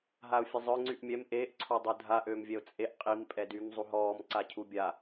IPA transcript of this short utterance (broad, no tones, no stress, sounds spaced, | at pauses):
ɦ a ʊ̯ fʲ ə zˤ œ ŋ͡ǀ y ʔ mʲ ɛ m ʔ eː ʔ ǀʰ ɔ dˤ u dʱ a ʔ øː m vʲ ɛ ʊ̯ t͡sʼ e ʔ qʼ i m pʼ ɛ d y m zˤ u ɦ ɔː m ǀ a cʰ u bʲ a